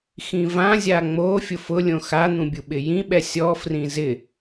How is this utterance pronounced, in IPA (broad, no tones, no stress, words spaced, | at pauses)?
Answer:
xĩvãzʲa ŋ͡mo fʲʊfʊlʲõ xan̪ũ bʲuɓɪjĩɓɛ sʲɔfrĩ zɪ